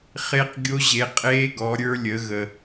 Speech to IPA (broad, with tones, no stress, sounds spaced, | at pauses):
χ e˦˥ q ɡʲ o˦˥ ʑ e˨˦ qʼ eː˦˥ ɡ ɔ˨˦ ɾʲ ə˞˦˥ lʲ ə˨˦ ɣ ə˨